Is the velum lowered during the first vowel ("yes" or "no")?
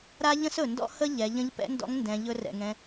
no